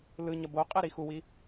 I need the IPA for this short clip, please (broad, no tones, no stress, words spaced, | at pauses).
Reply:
lɯɲʌ boqʼe ɾixuwi